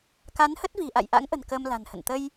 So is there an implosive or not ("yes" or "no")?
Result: no